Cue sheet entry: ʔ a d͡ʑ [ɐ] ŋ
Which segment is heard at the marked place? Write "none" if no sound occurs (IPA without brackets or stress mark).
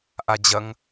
ɐ